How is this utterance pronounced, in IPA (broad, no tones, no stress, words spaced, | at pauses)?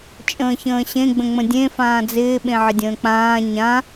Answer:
t͡ʃʼə̃ːçə̃ːɕẽ ɡ͡bə̃ŋ͡mə̃dʲẽ fãːd͡zɪː ɓẽʕɪdʲə̃ːk͡pãː ɲã